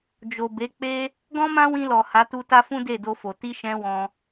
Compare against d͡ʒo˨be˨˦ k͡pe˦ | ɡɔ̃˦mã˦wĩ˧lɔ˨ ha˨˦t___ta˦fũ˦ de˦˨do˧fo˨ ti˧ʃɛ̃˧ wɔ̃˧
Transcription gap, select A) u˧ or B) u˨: A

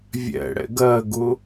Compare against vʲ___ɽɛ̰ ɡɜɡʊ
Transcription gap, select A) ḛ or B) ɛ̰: B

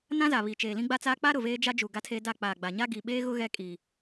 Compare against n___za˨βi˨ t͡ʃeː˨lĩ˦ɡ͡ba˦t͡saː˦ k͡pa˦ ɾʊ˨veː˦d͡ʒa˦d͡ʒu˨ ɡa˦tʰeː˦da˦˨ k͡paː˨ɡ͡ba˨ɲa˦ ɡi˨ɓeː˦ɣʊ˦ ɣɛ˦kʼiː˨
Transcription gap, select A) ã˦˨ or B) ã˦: B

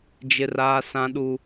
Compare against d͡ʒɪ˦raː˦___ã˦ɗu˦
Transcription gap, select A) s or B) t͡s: A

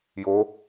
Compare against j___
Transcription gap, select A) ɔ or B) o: B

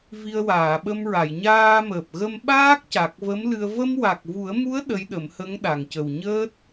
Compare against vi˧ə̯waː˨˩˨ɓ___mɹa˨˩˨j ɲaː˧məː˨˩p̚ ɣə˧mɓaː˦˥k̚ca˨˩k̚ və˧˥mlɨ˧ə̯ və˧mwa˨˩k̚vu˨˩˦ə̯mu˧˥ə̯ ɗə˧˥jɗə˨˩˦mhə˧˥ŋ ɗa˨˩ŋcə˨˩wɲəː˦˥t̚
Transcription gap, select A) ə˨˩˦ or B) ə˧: B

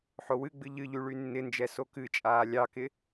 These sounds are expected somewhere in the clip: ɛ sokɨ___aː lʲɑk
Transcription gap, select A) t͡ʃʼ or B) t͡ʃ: A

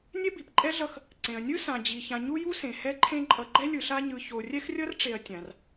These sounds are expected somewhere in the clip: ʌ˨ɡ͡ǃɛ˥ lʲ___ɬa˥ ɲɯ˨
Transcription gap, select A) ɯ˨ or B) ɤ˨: A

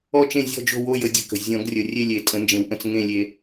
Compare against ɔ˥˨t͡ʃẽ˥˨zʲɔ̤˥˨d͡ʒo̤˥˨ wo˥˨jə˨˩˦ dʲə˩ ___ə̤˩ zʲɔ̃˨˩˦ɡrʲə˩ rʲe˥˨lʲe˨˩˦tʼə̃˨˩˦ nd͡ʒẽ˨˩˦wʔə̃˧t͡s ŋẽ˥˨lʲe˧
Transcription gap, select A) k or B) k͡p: A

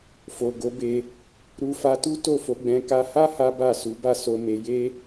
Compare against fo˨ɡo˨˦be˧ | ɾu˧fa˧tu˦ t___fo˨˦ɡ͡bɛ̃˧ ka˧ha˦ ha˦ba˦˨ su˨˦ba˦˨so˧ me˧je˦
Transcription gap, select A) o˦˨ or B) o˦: A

